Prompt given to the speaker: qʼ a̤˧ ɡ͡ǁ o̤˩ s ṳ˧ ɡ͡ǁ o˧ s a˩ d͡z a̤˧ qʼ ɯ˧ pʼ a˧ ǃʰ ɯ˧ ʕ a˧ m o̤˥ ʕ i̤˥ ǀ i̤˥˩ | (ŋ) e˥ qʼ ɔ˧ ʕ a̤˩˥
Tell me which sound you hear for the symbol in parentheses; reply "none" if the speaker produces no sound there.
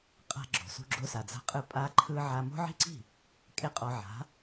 kʼ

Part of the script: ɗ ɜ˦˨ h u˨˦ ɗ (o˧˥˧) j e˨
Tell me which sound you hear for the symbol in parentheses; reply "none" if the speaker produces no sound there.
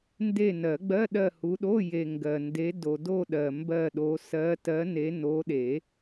o˧˥˧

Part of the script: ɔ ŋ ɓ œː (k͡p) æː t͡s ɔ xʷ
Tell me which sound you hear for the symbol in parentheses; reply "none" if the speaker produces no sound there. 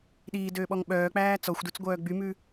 k͡p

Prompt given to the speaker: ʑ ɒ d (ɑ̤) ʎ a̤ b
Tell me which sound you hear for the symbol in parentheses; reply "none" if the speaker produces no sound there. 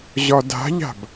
a̤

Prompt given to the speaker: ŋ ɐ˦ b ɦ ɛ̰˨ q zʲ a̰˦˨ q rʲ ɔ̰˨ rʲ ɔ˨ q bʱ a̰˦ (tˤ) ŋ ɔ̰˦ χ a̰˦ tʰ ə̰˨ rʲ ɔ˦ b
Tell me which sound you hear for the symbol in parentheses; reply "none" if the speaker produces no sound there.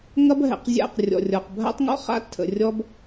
tˤ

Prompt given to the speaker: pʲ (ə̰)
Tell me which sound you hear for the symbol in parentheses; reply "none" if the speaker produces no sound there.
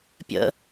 ə̰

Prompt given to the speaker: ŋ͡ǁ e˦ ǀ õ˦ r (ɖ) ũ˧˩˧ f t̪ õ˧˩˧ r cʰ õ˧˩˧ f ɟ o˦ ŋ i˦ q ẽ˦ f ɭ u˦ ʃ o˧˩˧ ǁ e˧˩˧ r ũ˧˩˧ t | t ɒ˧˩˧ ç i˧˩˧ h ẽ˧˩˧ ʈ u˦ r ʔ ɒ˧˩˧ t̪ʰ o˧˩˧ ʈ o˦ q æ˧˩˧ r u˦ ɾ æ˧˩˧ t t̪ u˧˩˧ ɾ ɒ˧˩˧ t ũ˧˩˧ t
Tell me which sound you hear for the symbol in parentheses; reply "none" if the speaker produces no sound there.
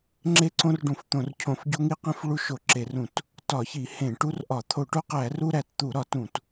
ɖ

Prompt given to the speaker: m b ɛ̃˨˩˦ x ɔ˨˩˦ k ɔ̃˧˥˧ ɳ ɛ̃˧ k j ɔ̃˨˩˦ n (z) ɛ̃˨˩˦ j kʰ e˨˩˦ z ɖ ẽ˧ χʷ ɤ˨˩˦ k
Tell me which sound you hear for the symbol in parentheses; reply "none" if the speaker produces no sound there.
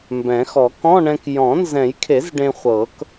z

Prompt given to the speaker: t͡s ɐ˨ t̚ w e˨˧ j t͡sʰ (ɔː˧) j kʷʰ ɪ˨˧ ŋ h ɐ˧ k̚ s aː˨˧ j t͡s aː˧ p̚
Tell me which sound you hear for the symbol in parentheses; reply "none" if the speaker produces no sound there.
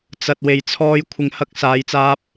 ɔː˧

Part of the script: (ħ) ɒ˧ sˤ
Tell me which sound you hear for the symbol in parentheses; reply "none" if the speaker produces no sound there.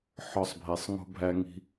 ħ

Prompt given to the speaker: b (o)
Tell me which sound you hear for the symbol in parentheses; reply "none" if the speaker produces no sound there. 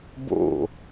o̰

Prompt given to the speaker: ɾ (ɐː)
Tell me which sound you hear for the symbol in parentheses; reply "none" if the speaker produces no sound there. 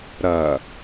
ɐː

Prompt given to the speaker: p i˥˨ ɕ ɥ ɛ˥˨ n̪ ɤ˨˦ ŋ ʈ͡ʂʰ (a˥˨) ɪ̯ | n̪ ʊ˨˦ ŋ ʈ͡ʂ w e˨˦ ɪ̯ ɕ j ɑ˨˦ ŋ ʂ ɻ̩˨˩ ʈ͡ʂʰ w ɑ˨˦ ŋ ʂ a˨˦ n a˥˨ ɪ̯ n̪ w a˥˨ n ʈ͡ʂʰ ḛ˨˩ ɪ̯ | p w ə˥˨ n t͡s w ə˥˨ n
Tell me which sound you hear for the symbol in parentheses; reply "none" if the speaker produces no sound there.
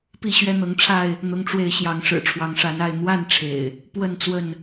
a˥˨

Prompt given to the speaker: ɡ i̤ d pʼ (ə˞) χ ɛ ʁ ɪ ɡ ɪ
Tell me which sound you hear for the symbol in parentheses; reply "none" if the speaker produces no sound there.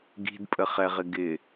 ə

